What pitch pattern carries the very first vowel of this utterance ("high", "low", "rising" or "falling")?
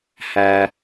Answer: high